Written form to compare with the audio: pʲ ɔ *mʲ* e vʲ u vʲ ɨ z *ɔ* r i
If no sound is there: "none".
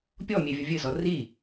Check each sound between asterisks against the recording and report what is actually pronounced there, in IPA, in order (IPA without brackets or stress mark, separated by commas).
mʲ, ɔ